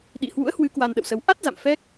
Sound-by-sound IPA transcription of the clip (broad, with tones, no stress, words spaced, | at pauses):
ɗḭ˧˨hwṵ˧˥ə̯hwɨ˨˦ kwa˧nɗə̰˧˨wsə˧w ʔa˦˥t̚za̰˧˨m fɛ˦˥k̚